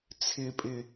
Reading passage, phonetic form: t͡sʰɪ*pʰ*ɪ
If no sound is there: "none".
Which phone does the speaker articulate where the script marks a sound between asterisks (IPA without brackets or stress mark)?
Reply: pʼ